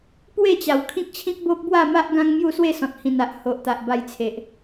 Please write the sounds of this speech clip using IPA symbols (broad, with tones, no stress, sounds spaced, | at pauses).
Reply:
p w e˥˧ t͡ɕ a˨˩ w kʰ ĩ˦ k̚ t͡ɕʰ ĩ˦ k̚ b o˦ p̚ b w a˥˧ m a˦ ʔ ɡ ã˦ ŋ m j u˥˧ s w e˥˧ s ɔ̃˨ t̚ h ĩ˨˩ n a˨ ʔ h o˨ ʔ t̪ a˨ ʔ b a˧ j t͡sʰ e˨ ʔ